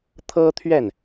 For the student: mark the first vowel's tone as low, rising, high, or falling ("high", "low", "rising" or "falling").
high